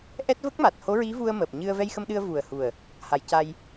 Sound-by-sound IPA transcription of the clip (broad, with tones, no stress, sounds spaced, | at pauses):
ʔ ɛ˦˥ t̚ v ə˦˥ k̚ m a˨˩ t̚ h o˧˥ ɹ i˧˥ v u˧ ə̯ m əː˨˩ p̚ ɲ ɨ˧ ə̯ v ɛ˧ j x ə˧ m ɗ ɨ˧ ə̯ v u˨˩ ə̯ h u˨˩ ə̯ | h a˨˩˨ j c a˧ j